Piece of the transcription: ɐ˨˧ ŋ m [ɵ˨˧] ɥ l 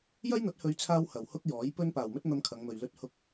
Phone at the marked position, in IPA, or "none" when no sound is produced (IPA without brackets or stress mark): ɵ˨